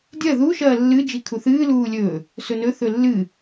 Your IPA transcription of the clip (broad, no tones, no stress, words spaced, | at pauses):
dʲɐ ðu ʃɐːlːɨ d͡ʒikʰuθɨː luːlʲɵ | sɵnɵ θɵlːɨ